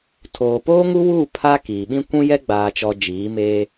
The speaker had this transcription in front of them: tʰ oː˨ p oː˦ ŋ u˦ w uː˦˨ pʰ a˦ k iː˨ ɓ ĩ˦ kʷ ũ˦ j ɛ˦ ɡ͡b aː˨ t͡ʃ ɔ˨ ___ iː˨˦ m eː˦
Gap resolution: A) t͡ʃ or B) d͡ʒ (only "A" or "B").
B